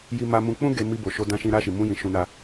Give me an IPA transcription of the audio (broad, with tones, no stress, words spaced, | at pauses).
ji˧ma˧mũ˧ k͡pũ˦ ɡe˧ mi˧bo˨ʃo˧ dã˧ʃĩ˧ ɾa˧ʃi˨mũ˧jĩ˨ ʃũ˧na˧